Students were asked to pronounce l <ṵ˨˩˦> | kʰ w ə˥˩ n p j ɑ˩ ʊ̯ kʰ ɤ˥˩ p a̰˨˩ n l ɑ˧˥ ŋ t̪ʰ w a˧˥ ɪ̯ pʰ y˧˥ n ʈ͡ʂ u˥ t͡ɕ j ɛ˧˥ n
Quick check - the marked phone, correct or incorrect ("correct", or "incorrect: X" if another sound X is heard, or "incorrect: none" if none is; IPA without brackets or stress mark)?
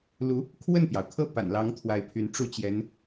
incorrect: u˧˥